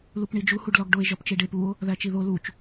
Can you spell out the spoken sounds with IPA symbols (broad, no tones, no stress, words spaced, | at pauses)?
lupɳid͡ʒu huɖlɒɡɖoe̯ ʒɒpt͡ʃeɖep uo̯ | ðæt͡ʃiðo lut͡ʃ